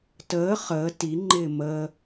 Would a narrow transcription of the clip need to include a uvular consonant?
yes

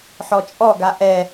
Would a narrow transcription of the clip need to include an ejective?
yes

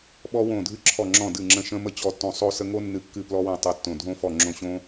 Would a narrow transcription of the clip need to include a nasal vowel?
yes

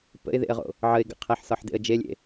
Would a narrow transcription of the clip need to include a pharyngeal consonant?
yes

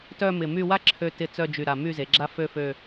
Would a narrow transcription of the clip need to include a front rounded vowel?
yes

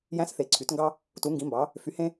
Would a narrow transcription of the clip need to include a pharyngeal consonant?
no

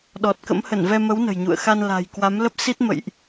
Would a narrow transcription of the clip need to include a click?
no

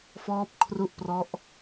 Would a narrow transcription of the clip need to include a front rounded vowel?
no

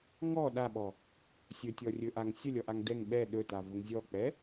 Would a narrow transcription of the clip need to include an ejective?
no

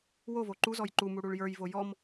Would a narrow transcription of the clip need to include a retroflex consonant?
yes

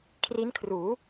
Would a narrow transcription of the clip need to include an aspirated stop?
yes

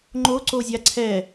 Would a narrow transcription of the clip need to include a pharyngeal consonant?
no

